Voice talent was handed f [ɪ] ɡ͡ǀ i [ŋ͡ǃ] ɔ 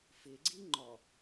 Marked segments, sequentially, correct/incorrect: correct, correct

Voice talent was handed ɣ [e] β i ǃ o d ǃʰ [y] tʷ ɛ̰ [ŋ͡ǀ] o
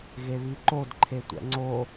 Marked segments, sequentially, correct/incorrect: correct, incorrect: e, correct

